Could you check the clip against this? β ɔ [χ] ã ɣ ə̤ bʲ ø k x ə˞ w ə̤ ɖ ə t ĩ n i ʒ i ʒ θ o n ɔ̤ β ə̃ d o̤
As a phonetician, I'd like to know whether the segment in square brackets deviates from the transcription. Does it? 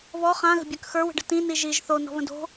no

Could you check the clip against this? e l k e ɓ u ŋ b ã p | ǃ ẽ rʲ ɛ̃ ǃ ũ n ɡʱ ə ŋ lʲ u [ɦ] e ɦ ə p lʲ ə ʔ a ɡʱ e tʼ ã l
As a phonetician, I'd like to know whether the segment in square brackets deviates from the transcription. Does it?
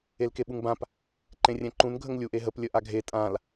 yes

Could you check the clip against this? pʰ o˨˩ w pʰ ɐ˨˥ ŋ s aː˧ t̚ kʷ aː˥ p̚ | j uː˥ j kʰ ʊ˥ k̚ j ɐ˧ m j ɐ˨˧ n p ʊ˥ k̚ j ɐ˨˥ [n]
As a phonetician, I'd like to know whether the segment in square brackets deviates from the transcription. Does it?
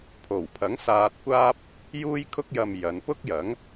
yes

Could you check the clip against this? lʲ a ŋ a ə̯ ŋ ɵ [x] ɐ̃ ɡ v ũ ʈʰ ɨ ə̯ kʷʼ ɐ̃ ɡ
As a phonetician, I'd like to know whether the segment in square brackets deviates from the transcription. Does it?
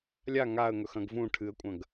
no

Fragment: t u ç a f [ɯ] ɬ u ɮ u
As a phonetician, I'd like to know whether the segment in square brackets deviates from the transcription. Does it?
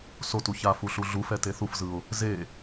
yes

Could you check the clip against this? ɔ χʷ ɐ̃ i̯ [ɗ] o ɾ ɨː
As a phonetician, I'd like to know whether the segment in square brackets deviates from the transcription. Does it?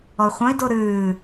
yes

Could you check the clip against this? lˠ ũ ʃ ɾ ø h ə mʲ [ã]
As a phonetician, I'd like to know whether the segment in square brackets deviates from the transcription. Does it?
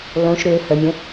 yes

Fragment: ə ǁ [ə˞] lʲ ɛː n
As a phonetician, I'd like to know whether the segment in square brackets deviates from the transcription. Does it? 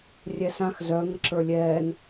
no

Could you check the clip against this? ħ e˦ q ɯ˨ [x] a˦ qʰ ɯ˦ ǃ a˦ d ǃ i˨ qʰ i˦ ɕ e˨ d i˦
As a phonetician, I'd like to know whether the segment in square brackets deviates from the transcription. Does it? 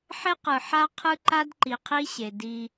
yes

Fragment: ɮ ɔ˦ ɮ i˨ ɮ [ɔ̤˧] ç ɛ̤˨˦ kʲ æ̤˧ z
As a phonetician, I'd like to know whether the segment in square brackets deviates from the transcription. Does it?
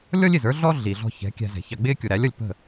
no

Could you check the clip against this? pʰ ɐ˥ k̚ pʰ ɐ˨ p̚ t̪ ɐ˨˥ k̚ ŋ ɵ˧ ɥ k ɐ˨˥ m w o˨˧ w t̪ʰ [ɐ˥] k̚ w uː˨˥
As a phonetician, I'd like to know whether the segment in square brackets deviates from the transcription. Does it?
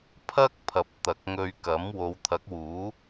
yes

